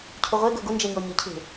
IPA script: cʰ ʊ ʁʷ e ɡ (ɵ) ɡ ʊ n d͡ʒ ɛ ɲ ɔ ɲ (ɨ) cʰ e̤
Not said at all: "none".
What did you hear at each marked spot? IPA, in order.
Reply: ɵ, ɨ

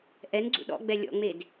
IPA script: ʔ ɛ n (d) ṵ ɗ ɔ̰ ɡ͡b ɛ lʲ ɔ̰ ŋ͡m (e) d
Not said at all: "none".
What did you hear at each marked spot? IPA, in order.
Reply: ɡ͡ǀ, e

